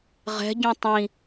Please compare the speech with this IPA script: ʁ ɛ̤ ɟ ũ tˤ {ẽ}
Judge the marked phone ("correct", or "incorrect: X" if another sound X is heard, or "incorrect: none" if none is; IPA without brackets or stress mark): incorrect: ĩ